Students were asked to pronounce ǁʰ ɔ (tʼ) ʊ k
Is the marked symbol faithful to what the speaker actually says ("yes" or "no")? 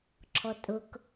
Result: yes